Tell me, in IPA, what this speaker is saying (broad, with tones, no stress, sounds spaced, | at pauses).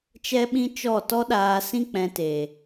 t͡ʃ ɛ˦ ɓ ĩ˦ t͡ʃ ɔ˦˨ t ɔ˦ ɗ aː˧ s ĩ˦ k͡p ɛ̃˧ t e˨